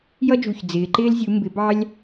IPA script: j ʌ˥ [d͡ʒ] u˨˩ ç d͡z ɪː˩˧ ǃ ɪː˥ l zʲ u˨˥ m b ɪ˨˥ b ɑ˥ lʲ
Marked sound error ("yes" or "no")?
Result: no